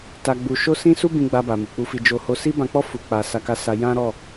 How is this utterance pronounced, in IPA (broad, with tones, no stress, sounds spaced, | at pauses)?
t a˧ ɡ͡b u˧ ʃ o˦ s ĩ˦ s u˦ b ĩ˧ ɡ͡b a˧ b a˨ m i˨ k͡p u˧ f i˧ d͡ʒ o˧ h o˧ s i˦ b ã˧ k͡p ɔ˦ f u˧ k͡p a˧ s a˧ k a˧ s a˧ j ã˦ ɾ ɔ˦˨